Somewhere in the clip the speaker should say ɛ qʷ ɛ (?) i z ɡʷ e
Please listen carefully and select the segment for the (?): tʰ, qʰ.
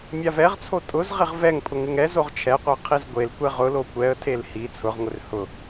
qʰ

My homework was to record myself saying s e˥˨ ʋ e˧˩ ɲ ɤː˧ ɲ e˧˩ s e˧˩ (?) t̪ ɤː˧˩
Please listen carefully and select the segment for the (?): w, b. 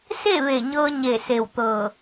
w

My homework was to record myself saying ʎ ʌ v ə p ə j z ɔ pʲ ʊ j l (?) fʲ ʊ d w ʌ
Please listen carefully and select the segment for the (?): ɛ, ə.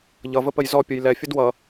ɛ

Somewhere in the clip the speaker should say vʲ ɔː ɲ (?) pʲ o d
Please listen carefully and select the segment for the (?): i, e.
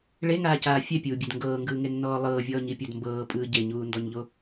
i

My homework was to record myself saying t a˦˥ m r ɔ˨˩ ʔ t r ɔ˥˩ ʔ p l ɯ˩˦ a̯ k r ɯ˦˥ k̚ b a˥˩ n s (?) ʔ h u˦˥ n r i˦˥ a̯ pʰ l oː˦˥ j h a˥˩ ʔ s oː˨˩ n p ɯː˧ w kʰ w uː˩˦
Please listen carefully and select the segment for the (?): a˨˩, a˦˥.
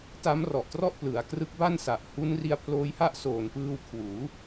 a˨˩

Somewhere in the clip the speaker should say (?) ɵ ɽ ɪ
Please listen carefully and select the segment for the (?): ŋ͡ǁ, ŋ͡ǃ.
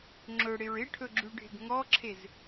ŋ͡ǁ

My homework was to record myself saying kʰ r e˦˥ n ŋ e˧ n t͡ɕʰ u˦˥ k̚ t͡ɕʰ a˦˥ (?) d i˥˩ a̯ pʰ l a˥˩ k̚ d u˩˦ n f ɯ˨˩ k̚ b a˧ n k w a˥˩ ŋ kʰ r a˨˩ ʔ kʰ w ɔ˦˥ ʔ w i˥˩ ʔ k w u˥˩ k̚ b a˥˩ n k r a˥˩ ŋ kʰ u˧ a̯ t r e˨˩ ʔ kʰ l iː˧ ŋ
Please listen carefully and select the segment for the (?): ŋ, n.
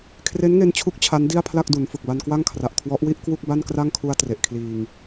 n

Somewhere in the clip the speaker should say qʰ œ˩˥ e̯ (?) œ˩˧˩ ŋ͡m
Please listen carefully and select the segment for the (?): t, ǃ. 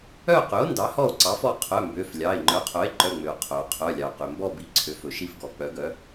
ǃ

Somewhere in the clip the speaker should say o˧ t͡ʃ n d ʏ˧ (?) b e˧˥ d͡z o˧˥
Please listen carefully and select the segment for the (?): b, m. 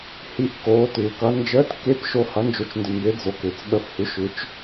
m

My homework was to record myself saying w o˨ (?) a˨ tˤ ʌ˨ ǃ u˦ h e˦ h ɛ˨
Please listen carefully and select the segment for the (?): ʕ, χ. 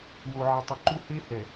ʕ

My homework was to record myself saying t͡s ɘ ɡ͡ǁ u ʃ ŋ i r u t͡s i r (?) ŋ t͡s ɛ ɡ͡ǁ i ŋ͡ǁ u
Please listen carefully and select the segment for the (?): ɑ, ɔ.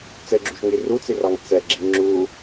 ɑ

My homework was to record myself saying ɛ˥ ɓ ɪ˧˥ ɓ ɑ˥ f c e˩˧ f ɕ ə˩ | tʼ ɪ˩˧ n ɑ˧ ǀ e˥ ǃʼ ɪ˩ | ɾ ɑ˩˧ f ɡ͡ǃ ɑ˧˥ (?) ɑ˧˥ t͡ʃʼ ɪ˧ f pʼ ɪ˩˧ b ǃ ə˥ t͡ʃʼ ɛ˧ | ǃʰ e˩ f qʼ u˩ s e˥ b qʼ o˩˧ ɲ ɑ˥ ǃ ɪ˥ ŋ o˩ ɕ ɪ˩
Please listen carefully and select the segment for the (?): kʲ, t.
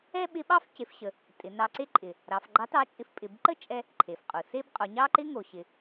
t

